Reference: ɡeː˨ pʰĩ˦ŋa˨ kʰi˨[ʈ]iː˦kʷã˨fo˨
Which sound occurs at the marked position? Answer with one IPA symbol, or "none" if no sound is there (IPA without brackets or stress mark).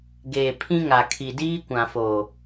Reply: d